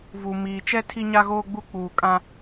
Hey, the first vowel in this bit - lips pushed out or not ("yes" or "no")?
yes